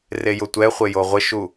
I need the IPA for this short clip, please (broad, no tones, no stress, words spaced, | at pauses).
rejʊtʷɛχʷe joʁʷɪʃu